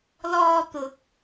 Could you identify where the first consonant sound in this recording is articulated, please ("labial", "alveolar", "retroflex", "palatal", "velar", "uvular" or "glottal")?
alveolar